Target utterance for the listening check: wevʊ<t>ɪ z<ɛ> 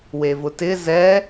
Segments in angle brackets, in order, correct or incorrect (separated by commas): correct, correct